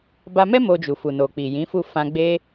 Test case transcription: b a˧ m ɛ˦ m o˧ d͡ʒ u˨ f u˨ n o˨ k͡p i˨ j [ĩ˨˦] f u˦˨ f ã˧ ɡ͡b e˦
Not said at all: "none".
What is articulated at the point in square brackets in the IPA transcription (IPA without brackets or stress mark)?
ĩ˨˦